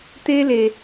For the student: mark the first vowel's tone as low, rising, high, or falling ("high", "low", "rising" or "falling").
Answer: high